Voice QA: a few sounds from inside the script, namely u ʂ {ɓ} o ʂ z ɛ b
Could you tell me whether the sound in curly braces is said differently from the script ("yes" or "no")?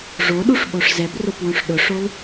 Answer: no